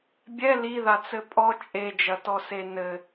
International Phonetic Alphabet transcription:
bʲ ɛ l i ð a t͡s ɘ pʼ ɔ t͡ʃʼ e d͡ʒ ɐ t ɔ s e n ɘ

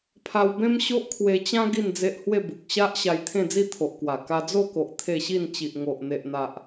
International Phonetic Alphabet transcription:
pʰ a˧ w b ẽ˦ m ɕ o˦ ʔ kʰ w e˧ t͡ɕ ã˦ ɡ i˥˧ n d͡z e˦ ʔ h w e˥˧ b u˨ k̚ ɕ a˦ ʔ ɕ a˧ j t̪ʰ ẽ˥˧ d͡z i˥˧ t̪ʰ o˨ ʔ k w a˨˩ k a˧ d͡z o˥˧ k o˨ ʔ t̪ʰ e˥˧ ɕ i˥˧ n t͡ɕ i˨ ʔ ŋ o˨ ʔ n̪ e˨ ʔ n̪ a˨ ʔ

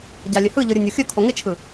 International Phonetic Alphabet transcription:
ɟ a lʲ ɘ h ɯ ʎ ɯ ɾʲ ɯ nʲ o xʲ ɵ kʰ o ŋ ɪ t͡ʃʰ ɯ

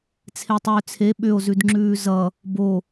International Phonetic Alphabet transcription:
t͡sʰ e tˤ ʏː t͡sʰ e ɓ ʏ o̯ z ʉ d ŋ͡ǁ ʉː z ʌ | b o

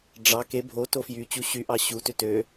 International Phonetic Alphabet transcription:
ɖ͡ʐ ɑ k e bʱ o t o f j y t͡ɕ u ɕ y ʔ ɑ ɕ u t ø t ø

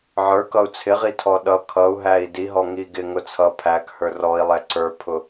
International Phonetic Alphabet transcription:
ʕ ə˞ k ʌ u̯ t͡sʰ ɪ ʁ i tʰ ɔ ɗ ʌ kʰ ʌ u̯ ɦ æ i̯ d i ɦ ɔ ŋ i ɡ ɪ ŋ ʊ t͡sʰ ʌ pʰ æ k h ə˞ r ɔ i̯ lˠ ɛ ǀ ə˞ pʰ ʊ

